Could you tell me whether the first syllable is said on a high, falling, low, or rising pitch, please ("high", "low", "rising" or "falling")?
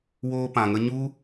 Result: high